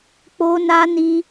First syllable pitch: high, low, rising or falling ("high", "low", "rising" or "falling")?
high